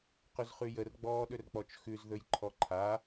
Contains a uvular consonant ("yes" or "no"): yes